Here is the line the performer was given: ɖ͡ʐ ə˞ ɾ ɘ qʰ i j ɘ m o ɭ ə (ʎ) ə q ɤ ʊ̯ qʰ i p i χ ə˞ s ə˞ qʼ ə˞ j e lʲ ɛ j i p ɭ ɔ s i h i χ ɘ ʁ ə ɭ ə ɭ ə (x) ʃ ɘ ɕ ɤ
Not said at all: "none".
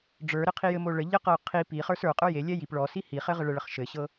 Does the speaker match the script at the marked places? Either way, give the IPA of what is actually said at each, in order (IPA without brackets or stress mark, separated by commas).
ʎ, χ